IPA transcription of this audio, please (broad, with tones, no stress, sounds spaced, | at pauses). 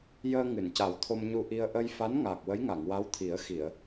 j əː˧ ŋ ɨ˨˩˨ n c a˨˩˦ w t̪ʰ o˧ m ɲ u˧ ʔ i˧ ə̯ ʔ ə˧ j f a˧˥ n ŋ aː˨˩ k̚ w ə˧˥ j ŋ a˨˩˨ ŋ w a˧˥ w t̪ʰ i˨˩˦ ə̯ x i˨˩˨ ə̯